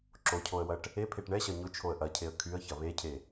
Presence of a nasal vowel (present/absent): absent